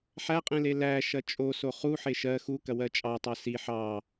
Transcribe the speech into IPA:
ħæqʼẽle læʃɐ t͡ʃʼoso χuħe ʃɜ xukɐwɜ t͡ʃʼɑtˤɑ si ħɑ

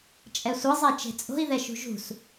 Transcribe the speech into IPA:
t͡ʃʼɛsʷɯzˤe t͡ʃe̤t͡sʼo̤i̯ ðɛʃṳʒṳs

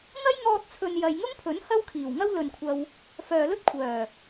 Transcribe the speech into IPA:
ŋɐ˥j ŋɔː˧t̚t͡sʰɵ˨n jɐ˨jŋʊ˥ŋpʰɵ˨˥n hɐ˥wkʰiː˨˩w ŋɐ˥wlɵ˨nkʷʰɐ˧w | fœː˨lɵ˥t̚kʷʰœː˨˩

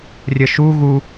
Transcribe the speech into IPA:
rʲəʃu ɣu

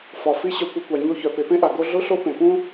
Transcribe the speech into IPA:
fɒ˩fi˥ ɕœ˧kʷœ˧kʷa˩ ɲo˧çœ˩ pe˩pẽ˥ʔa˩ ɡo˥ ɮʊ˥ɬo˥pẽ˩pũ˥

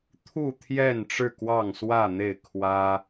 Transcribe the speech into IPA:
t̪ʰu˥˨ t̪ʰjɛ˥˨n ʈ͡ʂɻ̩˥˨kwɑ˥˨ŋswä˥˨n̪e˥˨ɪ̯ kʰwä˦

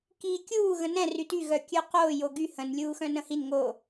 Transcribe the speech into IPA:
kiːkʲuː ɣə̃nɛ̃ ryty ɣœkʲœqoː joɡy hə̃n lʲuːxœ̃nə̃hin ŋo

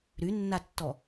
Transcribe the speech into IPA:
ɾynːatːɔ

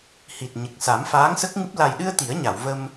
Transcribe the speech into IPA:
hi˨˩t̚ɲə˨˩k̚sa˨˩˦m faː˧˥ŋsə˦˥k̚ŋɨ˦˥p̚ la˨˩jɗɨ˧ə̯ t̪i˨˩˦ə̯ɲa˨˩˨wvə˧m

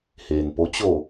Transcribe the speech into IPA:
heː˩npo˧˥ t͡ɕo˧˩

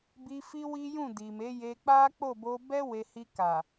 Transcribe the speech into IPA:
bi˧ fi˦wi˦jũ˦˨ di˨me˨˦je˧ k͡pa˦k͡po˦˨ bo˧bɛ˦ we˧ hi˧ka˨

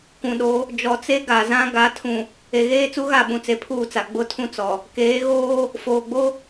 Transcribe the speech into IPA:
kʷũ˨ɗo˨˦ | d͡ʒɔ˨t͡se˦ ɡa˨zã˦ ɡa˨˦tʰũ˨ | e˨ɣeː˦t͡su˦ɣa˦˨ ɓũ˨t͡se˨pʰuː˦˨t͡sa˨ ɡ͡bʊ˦tʰũ˦t͡sɔ˨ | keː˨˦ɣoː˦ | foː˨ɡ͡bo˦

